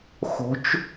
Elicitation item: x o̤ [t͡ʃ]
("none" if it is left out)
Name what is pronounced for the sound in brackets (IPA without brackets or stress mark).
t͡ʃ